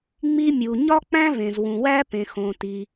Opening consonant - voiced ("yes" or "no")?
yes